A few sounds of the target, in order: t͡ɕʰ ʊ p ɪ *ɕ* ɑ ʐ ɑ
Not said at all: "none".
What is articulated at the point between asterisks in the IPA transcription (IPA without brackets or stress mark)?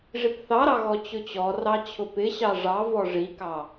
ɕ